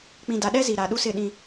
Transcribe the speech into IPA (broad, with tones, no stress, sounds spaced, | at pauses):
k͡p ĩ˨ d a˨ ɗ ɛ˦ z i˨ ɾ a˨ ɗ u˦ s ɪ˦˨ ɗ ĩ˦